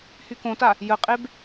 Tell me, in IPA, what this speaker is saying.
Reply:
h y k õ t a | j ə qʼ e b

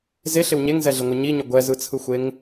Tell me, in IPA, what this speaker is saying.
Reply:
z e ɬ ɪ w ɲ e ŋ z ɛ ɮ ɪ ŋʷ ɯ ɲ i ɲ ʊ ɡʷ ɛ z ɯ t͡sʰ ɯ xʷ e ŋ

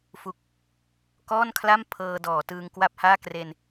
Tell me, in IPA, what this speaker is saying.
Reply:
f u˦˥ k̚ | k ɔː˥˩ n kʰ l a˥˩ m pʰ ɤː˧ d ɔː˩˦ t ɯː˧ ŋ k w a˥˩ p̚ h aː˥˩ k r e˧ n

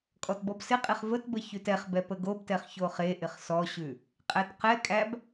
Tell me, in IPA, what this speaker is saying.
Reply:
kʼ ɔ t b ɔ b s ɪ qʼ e χ v ə t b ə ç ʉ t ɛ χ b ɛ p ə ɡ o b t ɛ χ ç o χ e ʔ ɪ χ s ɔ ɕ ʉ | qʼ æ t q ɛ kʼ æ b

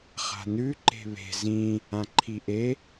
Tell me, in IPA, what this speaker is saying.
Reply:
χ a̤ n ʉ ǃ e̤ β e̤ z ĩ | ã ǃʰ i ʔ e

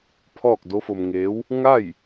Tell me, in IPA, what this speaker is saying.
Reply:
pʰ ɔː˥˨ k̚ d o˧˥ f o˧ m ŋ eː˧˥ w | ŋ a˥˨ j

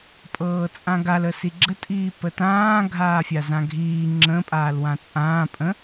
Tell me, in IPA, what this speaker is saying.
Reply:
pʼ ɤː t͡sʼ ã ɡ a l ə s i ɡ͡ǁ ə tʼ iː p ə t ãː ɡʱ aː fʲ a z ã ɡʱ iː ŋ͡ǁ ə̃ pʼ aː l w ã t͡sʼ ãː pʼ ə̃

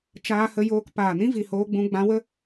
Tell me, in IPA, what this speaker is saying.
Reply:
t͡ʃ aː˧ h ə˧ j oː˧ k p aː˨ n ĩ˦ v i˨ h oː˧ ɡ͡b ũ˧ ɡ͡b ã˧ w ə˦

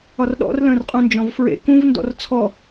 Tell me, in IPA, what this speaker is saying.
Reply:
ɒ r ɗ ɔ̰ r l ə̃ː r qʼ ũ n d͡ʒ ɔ̃ v f ɹ ḛ k ũ v n d ɔ̰ r t͡sʰ ɔ

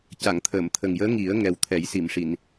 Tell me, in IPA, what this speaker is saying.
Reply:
c a˨˩˨ ŋ t̪ʰ əː˨˩˨ m t̪ʰ ə˨˩ ŋ j əː˧˥ ŋ i˨˩˦ ə̯ ŋ ɛ˨˩ w t̪ʰ ɛ˨˩˦ j s i˨˩˨ m ʂ i˨˩˨ n

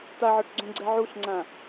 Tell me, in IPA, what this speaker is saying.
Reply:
t̪ a ʕ ɒ ʈ ɡ͡ǀ õ ɡ͡ǀ ɛ ʕ u ɬ ŋ͡ǀ ã

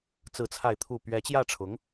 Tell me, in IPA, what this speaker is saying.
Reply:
t͡s ɹ̩˥˧ t͡sʰ a˥˧ ɪ̯ t̪ʰ u˥˩ p ɥ ɛ˧˥ t͡ɕ j ä˥˩ ʈ͡ʂʰ ʊ˧˥ ŋ

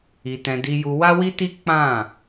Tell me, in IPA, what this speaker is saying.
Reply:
i˧ t ɛ̃˧ d i˧ j u˧ w a˦ w i˦ t i˦ k͡p ã˦˨

